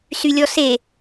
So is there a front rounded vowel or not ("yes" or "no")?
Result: yes